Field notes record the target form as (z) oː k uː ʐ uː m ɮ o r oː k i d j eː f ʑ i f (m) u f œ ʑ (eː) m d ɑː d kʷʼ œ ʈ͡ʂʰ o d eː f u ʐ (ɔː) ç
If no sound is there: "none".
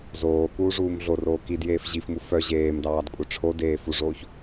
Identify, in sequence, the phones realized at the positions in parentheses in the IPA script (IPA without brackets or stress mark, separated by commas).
z, m, eː, oː